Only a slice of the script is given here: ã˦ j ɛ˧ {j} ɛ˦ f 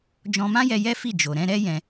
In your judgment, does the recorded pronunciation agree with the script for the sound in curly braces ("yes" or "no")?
yes